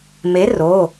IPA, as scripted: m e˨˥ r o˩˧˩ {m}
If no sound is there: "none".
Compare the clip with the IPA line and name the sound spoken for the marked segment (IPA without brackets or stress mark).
none